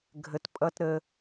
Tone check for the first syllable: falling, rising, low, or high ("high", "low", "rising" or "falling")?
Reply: low